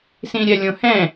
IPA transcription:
s ĩ ɾʲ ɛ lʲ õ h ɛ̃

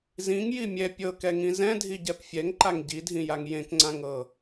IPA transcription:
z ĩ ŋ j i mʲ ɛ pʲ ɤ k ɛ ŋ ĩ z ɛ̃ dʱ i ɟ ɛ p fʲ ɛ ŋ ǃ a ŋ ɟ i dʱ ĩ j a ŋ j ẽ k ŋ͡ǀ ã ŋ ɤ

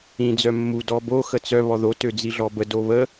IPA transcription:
ĩ d͡z œ mː u d ɔ b o x ə t͡s œ β ɔ ð o t ø d͡z i ɮ ɔ b ə d o β ə

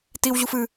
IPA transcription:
t i w ʑ u f ɨ

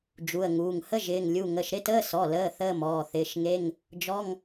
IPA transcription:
d͡ʒ u˩˧˩ ə̯ ŋ uː˩˧˩ ŋ h ə˧˥˧ ʒ ɪː˩˧˩ ŋ lʲ u˩˧˩ ŋ ə˩˧˩ ʃ ɾ ɪ˧˥˧ t əː˧˥˧ s ɔ˩˧˩ l əː˩˧˩ θ əː˧˥˧ m ɔː˩˧˩ θ ɪː˩˧˩ ʃ ŋ e˧˥˧ ŋ | d͡ʒ ɔ˧˥˧ ŋ

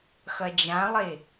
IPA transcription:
x ɐ d͡ʒ ã lˠ e

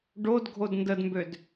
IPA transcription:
ɖ o d ɡʱ o d n d ə d m b ø d

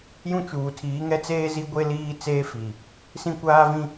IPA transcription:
j ũ˦ t͡ʃ uː˨ tʰ iː˨˦ ŋ ɛ˦ t͡s eː˦ z i˦ ɡʷ e˦ l iː˦ t͡s eː˦ f i˨ | s ĩ˦ kʷ aː˦ v ĩ˦

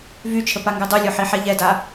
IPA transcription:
v y t͡ʃʰ ə p a ŋ ɡ ɯ dˤ y lʲ o ħ i ħ ɛ ʎ ɛ d a

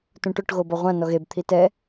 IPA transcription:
t ũ ʈ ʊ ʈ ɣ o b ɔ ʁʷ ã n ɔ ɣ e b t̪ʰ i t ɛ

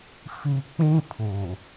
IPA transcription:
f i˦ k͡p ĩ˦ pʰ uː˨

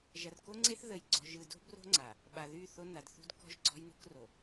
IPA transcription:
ʒ ɐ˨ r k o˦ ŋ͡ǀ e˦ θ ð ə˨ j ɡ͡ǀ ɔ̤˨ ʒ ɯ˨ d o̤˦ b r o̤˦ ŋ͡ǀ a˨ | ɓ a˨ ð y˦˨ θ o˦ n a˨ d θ ṳ˦ d k ɔ̤˦ ʒ ɡ͡ǀ ɔ̤˦ j n o̤˦ k r o˨

